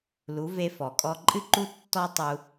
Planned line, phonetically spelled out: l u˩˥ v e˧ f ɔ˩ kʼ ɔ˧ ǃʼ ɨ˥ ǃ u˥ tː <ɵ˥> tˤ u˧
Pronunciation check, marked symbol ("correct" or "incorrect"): incorrect